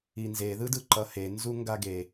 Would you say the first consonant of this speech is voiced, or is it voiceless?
voiced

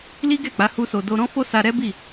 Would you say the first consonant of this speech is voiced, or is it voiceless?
voiced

